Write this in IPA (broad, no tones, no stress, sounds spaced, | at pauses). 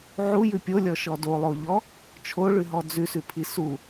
ʕ u j ʉ pʲ o lʲ ɔ ʃ ɔ d o lˠ o ʎ ɔ | t͡ʃʰ o ɭ ʉ ɦ ɔ d͡z ʉ s ʉ pʰ i s u